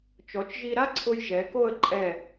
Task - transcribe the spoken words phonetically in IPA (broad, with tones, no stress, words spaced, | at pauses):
t͡ʃɔ˩˧t͡ʃʒi˧ ɾa˥ǀʰʊ˧j ʒɛ˩˧ko˥˧ə̯ǃʼɛ˧˩